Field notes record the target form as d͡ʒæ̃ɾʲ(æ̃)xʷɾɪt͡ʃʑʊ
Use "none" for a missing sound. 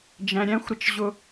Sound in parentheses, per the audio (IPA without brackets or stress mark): æ̃